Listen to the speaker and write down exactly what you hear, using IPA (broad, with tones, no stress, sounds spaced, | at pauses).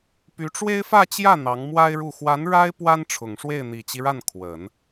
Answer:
p y˧˥ ʈ͡ʂ w e˥ ɪ̯ f ä˥˧ t͡ɕ j ä˥˩ n̪ ɑ˧˥ ŋ m w a˥ ɪ̯ ɻ u˥˩ x w a˧˥ n ɻ a˥ ɪ̯ p w a˥ n ʈ͡ʂʰ ʊ˨˩ ŋ ʂ w e˥˩ ɪ̯ n̪ i˨˩ t͡ɕ i˦ ɻ a˥˩ n kʰ w ə˨˩˦ n